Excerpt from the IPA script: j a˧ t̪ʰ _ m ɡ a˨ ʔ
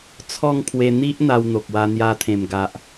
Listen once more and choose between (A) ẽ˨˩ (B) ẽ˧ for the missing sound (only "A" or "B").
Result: A